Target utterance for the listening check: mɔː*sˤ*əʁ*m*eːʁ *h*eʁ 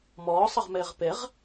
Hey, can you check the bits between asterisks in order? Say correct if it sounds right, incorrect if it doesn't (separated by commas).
correct, correct, incorrect